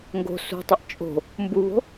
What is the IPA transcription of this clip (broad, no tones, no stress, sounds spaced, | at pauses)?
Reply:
ŋ ɡ o̤ s ṳ tˤ ɐ ʔ t͡ʃʼ o̤ | m b u β o̤